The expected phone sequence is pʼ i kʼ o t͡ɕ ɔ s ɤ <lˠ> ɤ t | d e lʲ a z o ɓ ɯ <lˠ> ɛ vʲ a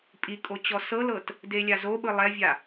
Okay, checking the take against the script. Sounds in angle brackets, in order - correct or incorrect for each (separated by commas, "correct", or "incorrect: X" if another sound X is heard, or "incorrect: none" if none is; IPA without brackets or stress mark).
incorrect: l, correct